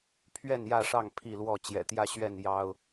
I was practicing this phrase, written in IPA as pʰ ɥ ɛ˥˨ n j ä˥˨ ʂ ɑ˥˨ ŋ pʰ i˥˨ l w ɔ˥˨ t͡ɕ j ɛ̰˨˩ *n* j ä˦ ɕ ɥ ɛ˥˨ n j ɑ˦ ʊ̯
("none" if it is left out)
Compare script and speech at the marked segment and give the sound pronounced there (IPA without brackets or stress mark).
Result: t̪